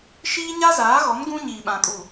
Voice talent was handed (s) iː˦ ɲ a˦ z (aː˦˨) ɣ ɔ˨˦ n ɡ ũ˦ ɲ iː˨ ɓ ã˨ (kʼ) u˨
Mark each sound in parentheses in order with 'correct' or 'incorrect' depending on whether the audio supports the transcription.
incorrect: ʃ, incorrect: aː˨˦, correct

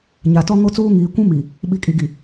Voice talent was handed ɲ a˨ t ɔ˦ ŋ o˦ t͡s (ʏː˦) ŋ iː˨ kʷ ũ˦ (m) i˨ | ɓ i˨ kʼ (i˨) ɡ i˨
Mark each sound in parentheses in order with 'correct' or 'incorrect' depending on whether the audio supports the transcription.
incorrect: uː˦, correct, correct

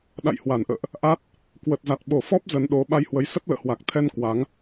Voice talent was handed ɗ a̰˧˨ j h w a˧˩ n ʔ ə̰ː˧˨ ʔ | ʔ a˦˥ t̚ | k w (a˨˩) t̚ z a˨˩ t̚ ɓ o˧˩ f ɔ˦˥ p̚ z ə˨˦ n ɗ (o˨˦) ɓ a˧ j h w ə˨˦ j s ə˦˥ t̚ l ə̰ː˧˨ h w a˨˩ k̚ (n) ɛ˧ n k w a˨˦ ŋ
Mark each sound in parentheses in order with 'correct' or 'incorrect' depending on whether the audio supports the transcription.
incorrect: ə˨˩, correct, incorrect: t̪ʰ

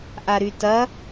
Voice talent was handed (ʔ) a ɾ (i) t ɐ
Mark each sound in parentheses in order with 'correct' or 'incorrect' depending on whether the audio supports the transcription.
correct, incorrect: y

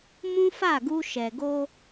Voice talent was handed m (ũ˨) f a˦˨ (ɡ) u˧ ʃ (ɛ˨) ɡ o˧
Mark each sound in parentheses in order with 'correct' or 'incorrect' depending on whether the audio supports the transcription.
incorrect: ũ˦, correct, correct

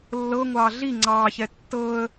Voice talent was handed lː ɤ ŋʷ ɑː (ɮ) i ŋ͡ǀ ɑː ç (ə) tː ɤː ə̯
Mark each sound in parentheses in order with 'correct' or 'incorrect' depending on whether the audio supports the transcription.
correct, incorrect: ɛ

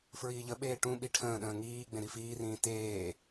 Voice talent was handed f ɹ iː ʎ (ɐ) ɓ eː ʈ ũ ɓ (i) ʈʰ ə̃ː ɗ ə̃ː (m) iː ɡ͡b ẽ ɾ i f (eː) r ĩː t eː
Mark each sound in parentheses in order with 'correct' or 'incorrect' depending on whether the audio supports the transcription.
incorrect: ə, correct, incorrect: ŋ, incorrect: iː

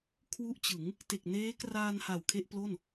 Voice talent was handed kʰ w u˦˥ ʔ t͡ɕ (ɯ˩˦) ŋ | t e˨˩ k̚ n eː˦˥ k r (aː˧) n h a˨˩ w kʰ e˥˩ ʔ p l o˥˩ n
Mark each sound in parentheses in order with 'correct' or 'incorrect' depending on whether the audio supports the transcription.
correct, correct

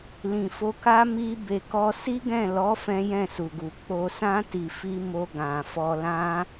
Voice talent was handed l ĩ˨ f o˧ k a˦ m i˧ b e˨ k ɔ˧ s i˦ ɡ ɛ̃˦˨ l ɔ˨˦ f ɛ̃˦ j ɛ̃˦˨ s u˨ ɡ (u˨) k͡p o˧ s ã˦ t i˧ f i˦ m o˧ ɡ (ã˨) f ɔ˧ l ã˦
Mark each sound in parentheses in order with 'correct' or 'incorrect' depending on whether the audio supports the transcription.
correct, correct

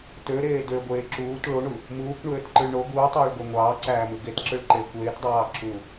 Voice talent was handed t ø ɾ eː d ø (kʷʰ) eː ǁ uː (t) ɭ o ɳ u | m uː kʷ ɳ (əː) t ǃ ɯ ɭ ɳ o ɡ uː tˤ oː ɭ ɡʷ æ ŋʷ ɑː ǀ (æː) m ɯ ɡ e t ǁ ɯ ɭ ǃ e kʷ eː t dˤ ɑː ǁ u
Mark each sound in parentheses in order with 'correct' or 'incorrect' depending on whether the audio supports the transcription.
incorrect: ɡʷ, correct, incorrect: øː, correct

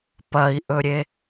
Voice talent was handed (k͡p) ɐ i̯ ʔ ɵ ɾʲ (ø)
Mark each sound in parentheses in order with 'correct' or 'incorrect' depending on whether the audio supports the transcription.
incorrect: p, incorrect: e

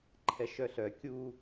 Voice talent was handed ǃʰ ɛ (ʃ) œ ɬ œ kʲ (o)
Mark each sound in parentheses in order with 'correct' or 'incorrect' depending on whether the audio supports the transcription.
correct, incorrect: u

